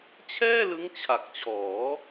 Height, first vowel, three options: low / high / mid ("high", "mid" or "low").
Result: mid